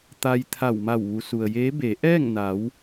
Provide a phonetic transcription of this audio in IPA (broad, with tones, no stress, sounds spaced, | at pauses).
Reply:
t̪ a˧ j t̪ʰ a˧˩ w m a˧˩ w ʋ u˩˧ s u˩ ə̯ j eː˧˥ b e˩˧ ʔ ɛː˥˨ ŋ n a˩˧ w